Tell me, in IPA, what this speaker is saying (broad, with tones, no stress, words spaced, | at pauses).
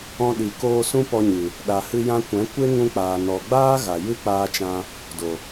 ɔ̃˧ɗi˨koː˧ sũ˦pɔ˧ɲɨ˨ | ɗa˨ hɨ˧jã˧kʷɛ̃˨˦ kʷe˦ŋũ˧k͡paː˨ nɔ˨ɡ͡baː˦ ɣa˨jɨ˦k͡paː˧t͡ʃã˧ | do˨